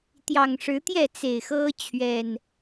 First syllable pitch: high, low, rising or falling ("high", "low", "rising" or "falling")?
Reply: low